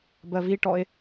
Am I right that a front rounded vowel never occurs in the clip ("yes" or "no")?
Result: yes